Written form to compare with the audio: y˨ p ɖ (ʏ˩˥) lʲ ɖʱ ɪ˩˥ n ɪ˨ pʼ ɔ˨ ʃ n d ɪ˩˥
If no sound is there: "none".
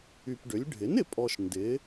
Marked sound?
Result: ʏ˩˥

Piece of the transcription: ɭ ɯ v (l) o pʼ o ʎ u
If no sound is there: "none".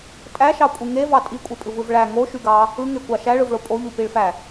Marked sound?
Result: ɭ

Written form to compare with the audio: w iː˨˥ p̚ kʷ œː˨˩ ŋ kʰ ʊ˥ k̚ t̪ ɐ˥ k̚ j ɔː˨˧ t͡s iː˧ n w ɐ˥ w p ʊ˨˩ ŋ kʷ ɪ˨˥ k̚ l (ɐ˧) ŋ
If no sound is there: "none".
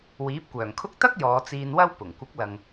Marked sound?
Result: ɐ˨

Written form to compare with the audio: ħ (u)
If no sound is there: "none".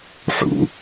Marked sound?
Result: ṵ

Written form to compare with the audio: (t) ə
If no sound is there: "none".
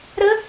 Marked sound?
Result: ɾ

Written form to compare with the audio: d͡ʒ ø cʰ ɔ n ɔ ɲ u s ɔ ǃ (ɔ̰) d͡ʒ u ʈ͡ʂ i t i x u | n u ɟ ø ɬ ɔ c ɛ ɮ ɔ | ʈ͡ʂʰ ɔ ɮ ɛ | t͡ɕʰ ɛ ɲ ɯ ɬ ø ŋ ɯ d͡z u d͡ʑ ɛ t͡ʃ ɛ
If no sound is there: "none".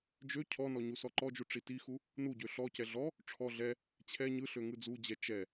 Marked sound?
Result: ɔ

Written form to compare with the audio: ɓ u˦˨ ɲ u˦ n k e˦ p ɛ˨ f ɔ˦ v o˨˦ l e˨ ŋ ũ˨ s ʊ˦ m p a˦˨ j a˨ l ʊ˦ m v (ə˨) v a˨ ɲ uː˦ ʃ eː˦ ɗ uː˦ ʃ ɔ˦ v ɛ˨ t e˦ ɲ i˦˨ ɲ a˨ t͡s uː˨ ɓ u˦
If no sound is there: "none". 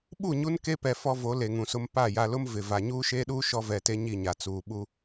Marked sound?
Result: ɪ˨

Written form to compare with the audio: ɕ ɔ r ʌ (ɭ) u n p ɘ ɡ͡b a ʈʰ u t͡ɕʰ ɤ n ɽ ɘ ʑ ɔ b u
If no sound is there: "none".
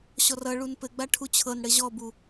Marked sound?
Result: ɭ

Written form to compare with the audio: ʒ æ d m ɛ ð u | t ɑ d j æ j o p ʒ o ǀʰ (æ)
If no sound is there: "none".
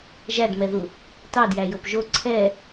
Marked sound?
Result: ɛ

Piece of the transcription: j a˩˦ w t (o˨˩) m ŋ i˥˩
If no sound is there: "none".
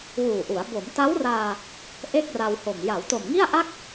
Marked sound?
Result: o˨˩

